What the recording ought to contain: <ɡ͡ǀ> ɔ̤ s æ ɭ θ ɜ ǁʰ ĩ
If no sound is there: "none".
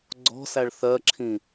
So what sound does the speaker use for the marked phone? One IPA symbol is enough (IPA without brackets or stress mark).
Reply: ɡ͡ǀ